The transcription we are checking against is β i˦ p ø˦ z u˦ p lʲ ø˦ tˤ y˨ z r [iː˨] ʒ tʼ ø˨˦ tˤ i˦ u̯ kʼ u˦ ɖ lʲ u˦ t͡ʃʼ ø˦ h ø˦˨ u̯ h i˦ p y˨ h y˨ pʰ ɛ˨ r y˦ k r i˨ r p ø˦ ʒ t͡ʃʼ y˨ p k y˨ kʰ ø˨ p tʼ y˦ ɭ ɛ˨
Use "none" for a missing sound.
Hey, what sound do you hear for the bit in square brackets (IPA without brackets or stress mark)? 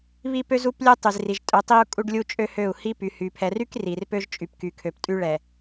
i˨